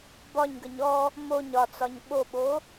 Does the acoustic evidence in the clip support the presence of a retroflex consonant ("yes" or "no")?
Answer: no